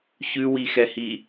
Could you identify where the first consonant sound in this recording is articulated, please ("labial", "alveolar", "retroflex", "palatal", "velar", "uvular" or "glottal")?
palatal